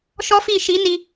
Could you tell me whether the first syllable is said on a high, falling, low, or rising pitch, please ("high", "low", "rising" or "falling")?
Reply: high